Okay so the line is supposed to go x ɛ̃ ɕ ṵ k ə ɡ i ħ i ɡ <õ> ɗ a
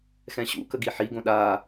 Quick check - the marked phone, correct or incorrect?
correct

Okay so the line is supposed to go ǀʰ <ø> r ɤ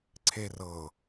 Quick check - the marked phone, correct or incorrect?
incorrect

